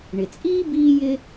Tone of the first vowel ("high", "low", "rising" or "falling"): low